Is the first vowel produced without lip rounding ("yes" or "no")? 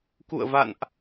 no